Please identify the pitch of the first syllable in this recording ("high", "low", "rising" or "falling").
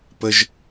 high